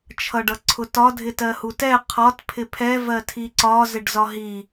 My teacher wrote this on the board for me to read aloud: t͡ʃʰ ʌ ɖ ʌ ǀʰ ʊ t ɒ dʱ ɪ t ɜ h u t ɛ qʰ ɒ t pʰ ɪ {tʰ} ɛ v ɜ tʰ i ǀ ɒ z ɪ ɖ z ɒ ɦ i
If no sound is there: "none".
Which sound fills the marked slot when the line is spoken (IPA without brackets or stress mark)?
pʰ